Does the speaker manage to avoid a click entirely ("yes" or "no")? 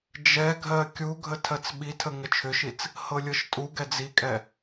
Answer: yes